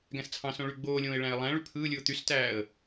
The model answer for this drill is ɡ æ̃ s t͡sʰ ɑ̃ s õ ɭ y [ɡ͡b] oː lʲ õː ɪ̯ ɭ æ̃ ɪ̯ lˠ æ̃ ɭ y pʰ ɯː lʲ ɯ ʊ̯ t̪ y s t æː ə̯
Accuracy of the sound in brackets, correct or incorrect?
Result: correct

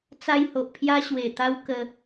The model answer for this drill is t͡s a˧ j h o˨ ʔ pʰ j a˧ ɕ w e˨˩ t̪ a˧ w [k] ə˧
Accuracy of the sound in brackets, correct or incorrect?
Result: correct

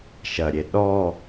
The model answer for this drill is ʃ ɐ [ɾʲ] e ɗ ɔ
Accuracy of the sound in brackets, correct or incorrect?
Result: correct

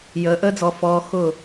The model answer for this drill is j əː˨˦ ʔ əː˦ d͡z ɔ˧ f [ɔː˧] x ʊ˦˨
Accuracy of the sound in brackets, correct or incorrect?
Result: correct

